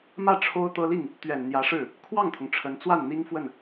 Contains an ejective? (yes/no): no